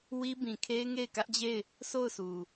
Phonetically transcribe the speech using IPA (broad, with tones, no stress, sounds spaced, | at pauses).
w i˦ b ĩ˨ kʰ e˦ ɪ̯ ŋ e˦˨ ɪ̯ k ä˦ ʔ d͡ʑ e˦˨ ɪ̯ | sʰ o˦˨ ʊ̯ s u˨